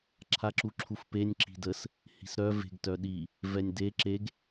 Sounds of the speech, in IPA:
ǁʰ a ǁ u ǁʰ u f p e nʲ ǁ i̤ d ə s | h i̤ s ɾ œ v e̤ ɡ t œ ɗ i | v ɛ nʲ d e ǁ e ɡ

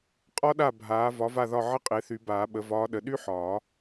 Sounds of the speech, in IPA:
qʼ ɒ˥ ɗ a˥˩ bʱ aː˩˥ v ɒ˩˥ v a˥˩ ð ɒ˥˩ ʕ ə˥ qʼ e˩˥ θ y˨˩˦ b aː˨˩˦ ɓ ə˩˥ v ɒː˧˥ ɗ ə˩˥ ɗ y˥ ħ ɒː˨˩˦

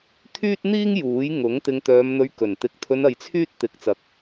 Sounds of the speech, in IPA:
t̪ʰ yː˥ t̚ n̪ iː˥ ŋ j uː˨˥ j ŋ ʊ˨˥ ŋ t̪ ɪ˧ ŋ t̪ œː˧ m n̪ ɵ˧ ɥ k ɵ˨˩ n t̪ ɪ˨˥ k̚ t̪ʰ ɵ˧ n ɐ˧ j t͡sʰ yː˥ t̚ t̪ ɪ˨˥ k̚ t͡s ɐ˨ k̚

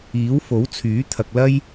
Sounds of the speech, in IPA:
iː˨˥ w f o˨˥ w t͡sʰ yː˨˥ t̪ʰ ɐ˨ k̚ l ɐ˥ j

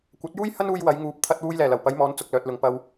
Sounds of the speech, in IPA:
kʷ ɐ˨˥ t̚ j uː˥ j h ɐ˥ n uː˧ j w ɐ˨˧ j ŋ uː˨˥ p̚ t̪ʰ ɐ˧ t̚ w uː˧ j l ɛː˨˩ l ɐ˨˩ w p ɐ˨˧ j m ɔː˨˧ n t͡s ʊ˨ k̚ l œː˨ t̚ l ʊ˨ ŋ p ɐ˧ w

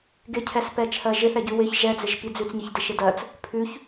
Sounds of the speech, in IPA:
ɡ ɪ cʰ ɛ s p ɛ t͡ʃʰ ɜ ʒ ɪ θ ɛ ɟ ʉ w ɪ ç ʒ ɛ d͡z ɪ ʒ p i d͡z ʉ t͡s ɲ i ç d ɪ ʃ ɪ d ɜ t͡s | pʰ ʉ ç

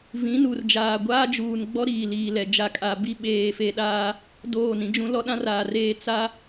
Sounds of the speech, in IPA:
v ĩ˨˦ n u˨ r d͡ʒ aː˨ ɡʷ aː˦ d͡ʒ uː˨ n ɡ͡b ɔ˦ ɾ iː˨ l iː˨ l ɛ˨ d͡ʒ a˨ kʼ a˨ b i˦ ɓ eː˨ f e˨ ɗ aː˦ | d oː˦˨ n ĩ˦ d͡ʒ ũ˦ l ɔ˦ ɗ ã˦ r aː˨ r eː˦ t͡s a˦

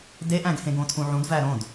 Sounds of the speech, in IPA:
d e ʔ æ̃ ɡ h ẽ ɡ õ tʰ ũ ʕ ũ d v æ ɾ õ d

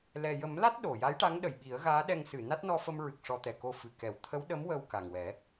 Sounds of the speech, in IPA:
l ɛ˨˩ j ə˨˩˦ m l a˦˥ t̚ ɗ o˨˩˨ j a˧˥ j ʈ a˧˥ ŋ ɗ ə˨˩˨ j ɓ i˨˩˦ ə̯ ɣ aː˧˥ ɗ ɛ˧ ŋ s ɨ˨˩˨ n a˦˥ t̚ n ɔ˧ f ə˧ m ɹ ɨ˨˩ k̚ ʂ ɔ˧ t̪ ɛ˨˩ k o˧ f ɨ˨˩˨ k ɛ˨˩˦ w t̪ʰ ə˧˥ w ɗ ə˧˥ m w ə˧ w k a˨˩ ŋ w ɛ˨˩˦

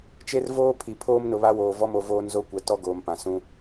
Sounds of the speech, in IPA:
t͡ʃ e˦ r v oː˦ pʰ i˨ pʰ oː˦ m n ʊ˨ β a˦ w oː˨ v ɔ˦ m o˨ v oː˦ n z o˦ kʷ ɛ˨ t ɔ˦ ɡ oː˨ m p ã˨ s ũ˦

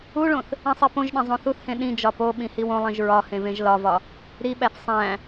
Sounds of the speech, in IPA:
u ɭ õ θ | ĩ sˤ i p õ ʒ ɗ ẽ zˤ õ θ u θ h ẽ ɗ ĩ d͡ʒ ɒ p o ɓ ĩ h i w õ lˠ ĩ ʒ ɹ ɒ h ẽ v ẽ ʒ l ɒ v ɒ | ɾ i ɓ æ θ sˤ æ̃

